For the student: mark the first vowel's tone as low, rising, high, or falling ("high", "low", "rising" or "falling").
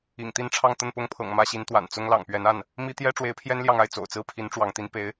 low